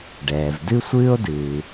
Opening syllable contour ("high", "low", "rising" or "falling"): low